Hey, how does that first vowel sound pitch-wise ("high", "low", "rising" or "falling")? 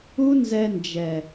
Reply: high